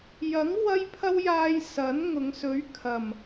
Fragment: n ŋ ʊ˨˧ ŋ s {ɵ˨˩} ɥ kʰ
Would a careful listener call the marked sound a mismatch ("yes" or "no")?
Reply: yes